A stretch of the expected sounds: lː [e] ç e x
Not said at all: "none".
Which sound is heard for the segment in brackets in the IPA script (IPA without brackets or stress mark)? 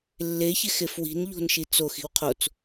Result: e